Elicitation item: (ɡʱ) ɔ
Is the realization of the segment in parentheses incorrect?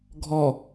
no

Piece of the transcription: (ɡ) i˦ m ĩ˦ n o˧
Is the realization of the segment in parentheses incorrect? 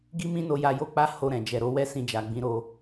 no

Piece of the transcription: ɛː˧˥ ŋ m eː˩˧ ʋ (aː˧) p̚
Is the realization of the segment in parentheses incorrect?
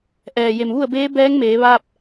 no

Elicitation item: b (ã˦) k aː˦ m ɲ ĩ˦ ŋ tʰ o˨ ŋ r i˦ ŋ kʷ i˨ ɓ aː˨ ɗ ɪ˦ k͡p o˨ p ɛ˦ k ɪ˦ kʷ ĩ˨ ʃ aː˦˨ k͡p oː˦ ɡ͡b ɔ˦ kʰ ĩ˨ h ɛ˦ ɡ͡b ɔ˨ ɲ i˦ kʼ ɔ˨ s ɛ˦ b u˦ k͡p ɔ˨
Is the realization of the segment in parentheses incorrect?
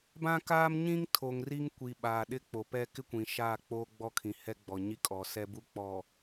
no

